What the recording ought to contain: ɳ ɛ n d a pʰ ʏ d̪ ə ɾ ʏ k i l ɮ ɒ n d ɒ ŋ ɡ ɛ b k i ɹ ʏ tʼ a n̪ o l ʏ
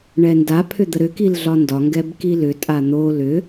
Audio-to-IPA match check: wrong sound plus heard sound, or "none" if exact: ɹ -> l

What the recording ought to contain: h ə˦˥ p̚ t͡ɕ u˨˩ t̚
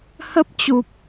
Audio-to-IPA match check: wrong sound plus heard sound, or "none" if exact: t̚ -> p̚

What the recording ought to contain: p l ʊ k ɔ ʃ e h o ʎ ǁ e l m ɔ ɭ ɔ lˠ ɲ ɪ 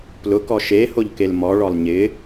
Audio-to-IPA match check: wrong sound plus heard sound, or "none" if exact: ǁ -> k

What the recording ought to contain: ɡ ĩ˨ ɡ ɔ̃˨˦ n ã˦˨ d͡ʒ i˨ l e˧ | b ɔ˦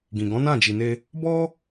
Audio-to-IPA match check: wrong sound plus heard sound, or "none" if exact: l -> n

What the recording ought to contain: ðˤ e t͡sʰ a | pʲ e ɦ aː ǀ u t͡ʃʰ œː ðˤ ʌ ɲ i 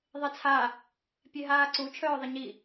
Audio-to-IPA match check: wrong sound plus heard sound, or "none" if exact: ʌ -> ə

